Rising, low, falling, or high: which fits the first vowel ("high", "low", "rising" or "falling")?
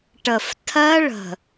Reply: low